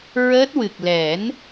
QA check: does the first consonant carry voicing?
yes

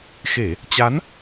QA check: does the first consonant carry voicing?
no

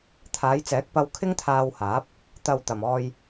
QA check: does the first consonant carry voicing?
no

